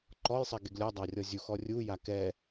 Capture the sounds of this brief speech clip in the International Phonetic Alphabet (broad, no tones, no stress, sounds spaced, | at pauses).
ǃ ɔ j sˤ ɛ ɡ e ɡ lʲ ɔ dˤ a rʲ ɔ zʲ u x ɔ rʲ u j a k ɛ